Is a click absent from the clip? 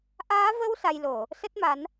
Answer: yes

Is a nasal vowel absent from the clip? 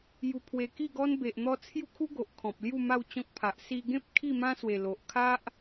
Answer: no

